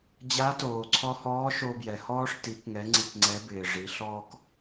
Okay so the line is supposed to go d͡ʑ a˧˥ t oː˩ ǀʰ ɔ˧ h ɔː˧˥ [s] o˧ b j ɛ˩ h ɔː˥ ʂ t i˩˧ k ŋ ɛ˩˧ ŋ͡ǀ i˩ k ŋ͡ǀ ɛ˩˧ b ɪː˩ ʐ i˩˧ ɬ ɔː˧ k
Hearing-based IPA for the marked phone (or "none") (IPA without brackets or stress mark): ʃ